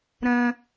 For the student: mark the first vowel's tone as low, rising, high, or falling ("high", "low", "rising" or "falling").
high